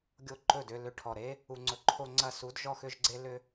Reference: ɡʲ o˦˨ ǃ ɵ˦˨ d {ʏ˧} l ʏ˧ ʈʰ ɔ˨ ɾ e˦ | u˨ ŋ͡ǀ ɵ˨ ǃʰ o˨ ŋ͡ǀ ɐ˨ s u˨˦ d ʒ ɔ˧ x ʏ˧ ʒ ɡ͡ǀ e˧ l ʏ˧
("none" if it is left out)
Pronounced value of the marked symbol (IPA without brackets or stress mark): ʏ˧